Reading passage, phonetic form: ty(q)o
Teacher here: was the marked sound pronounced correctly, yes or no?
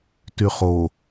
no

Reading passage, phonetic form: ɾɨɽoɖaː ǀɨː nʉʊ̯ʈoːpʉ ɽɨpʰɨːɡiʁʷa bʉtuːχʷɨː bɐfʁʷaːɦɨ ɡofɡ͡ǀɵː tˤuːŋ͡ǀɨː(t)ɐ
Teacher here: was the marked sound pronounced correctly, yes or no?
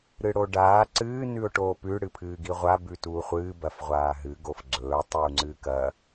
no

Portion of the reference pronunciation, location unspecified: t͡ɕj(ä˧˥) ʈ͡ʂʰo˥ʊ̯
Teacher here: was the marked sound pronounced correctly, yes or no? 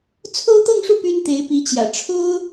no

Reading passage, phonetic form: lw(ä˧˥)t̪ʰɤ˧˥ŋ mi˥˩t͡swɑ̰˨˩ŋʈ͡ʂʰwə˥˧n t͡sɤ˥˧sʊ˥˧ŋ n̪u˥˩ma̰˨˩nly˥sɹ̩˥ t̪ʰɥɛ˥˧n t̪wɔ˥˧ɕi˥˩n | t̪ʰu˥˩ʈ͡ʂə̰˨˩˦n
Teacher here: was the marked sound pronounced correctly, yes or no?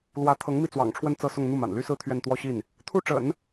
yes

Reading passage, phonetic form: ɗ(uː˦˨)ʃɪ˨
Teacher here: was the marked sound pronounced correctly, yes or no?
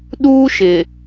no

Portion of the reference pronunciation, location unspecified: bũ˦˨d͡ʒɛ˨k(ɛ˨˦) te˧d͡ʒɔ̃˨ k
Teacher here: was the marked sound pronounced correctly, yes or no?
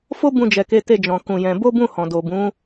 no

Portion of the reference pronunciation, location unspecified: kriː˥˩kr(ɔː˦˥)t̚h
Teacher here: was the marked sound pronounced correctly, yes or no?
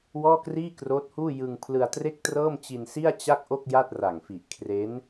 no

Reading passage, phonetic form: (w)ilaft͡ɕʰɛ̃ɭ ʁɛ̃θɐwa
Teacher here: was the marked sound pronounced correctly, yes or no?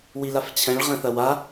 yes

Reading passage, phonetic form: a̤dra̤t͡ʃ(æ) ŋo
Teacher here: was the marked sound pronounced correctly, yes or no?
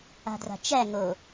yes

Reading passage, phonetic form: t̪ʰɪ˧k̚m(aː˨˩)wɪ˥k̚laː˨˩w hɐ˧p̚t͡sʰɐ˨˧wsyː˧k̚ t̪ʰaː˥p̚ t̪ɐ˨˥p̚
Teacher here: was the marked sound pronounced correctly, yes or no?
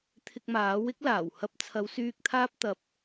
no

